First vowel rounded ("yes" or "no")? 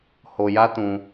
yes